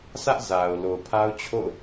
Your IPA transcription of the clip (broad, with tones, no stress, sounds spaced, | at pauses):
s ä˦ ʔ z a˨ ʊ̯ l o˨ ʊ̯ pʰ a˦ ʊ̯ t͡ɕʰ o̰˦˨ ʊ̯